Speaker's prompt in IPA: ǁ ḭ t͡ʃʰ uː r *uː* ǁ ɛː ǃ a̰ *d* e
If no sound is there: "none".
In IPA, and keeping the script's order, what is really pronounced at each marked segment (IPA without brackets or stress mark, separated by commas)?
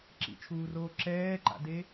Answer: oː, d